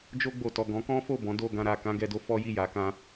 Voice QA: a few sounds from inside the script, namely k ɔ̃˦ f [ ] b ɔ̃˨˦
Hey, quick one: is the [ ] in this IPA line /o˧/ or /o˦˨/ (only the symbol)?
o˦˨